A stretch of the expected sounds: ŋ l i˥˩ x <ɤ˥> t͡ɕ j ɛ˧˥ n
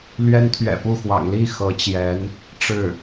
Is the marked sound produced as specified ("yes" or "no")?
no